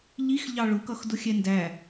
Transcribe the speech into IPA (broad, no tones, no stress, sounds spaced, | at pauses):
ʎ i x ʎ ɑ ɭ ʊ k ʌ x d ʊ xʲ ɛ n d æ